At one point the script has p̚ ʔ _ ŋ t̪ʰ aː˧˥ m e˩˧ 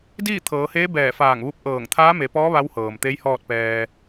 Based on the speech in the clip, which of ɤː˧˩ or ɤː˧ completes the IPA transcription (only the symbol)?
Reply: ɤː˧˩